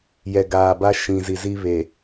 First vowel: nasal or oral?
oral